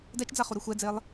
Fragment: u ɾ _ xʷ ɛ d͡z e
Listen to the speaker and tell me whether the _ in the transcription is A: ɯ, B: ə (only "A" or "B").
A